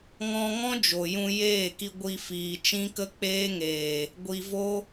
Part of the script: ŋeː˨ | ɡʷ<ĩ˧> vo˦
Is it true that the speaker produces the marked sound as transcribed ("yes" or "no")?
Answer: no